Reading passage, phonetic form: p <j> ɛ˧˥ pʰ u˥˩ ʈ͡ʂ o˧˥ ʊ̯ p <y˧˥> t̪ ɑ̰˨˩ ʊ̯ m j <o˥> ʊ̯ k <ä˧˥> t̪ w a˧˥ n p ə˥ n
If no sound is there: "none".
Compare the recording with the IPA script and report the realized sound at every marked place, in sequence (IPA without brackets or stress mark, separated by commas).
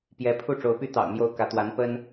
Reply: j, y˥, o˥, ä˧˥